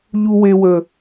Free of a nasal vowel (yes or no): yes